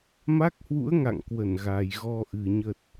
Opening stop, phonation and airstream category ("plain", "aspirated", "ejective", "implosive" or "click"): plain